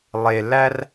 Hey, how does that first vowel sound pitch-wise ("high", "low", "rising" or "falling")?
low